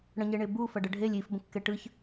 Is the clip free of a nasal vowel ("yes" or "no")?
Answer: no